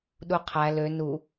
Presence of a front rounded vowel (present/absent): present